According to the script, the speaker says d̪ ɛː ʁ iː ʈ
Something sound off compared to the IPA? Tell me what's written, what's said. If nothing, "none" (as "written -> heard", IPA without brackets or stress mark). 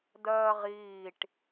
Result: ɛː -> ɜː